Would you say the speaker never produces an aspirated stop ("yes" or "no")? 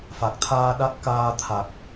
no